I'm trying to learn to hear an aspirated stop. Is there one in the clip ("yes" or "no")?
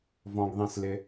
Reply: no